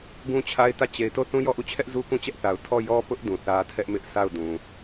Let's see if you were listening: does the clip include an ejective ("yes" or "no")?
no